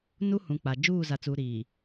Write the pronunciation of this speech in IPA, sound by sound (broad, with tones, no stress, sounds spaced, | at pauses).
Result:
n u˦ h ũ˨ k͡p a˨ d͡ʒ uː˦˨ z a˨ t͡s uː˨ ɾ iː˨